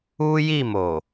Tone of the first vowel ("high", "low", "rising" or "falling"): high